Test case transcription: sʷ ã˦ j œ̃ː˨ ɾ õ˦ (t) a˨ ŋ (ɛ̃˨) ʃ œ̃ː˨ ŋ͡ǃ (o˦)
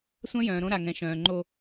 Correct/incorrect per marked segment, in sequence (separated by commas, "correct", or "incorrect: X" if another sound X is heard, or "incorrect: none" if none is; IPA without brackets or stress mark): incorrect: ɾ, correct, correct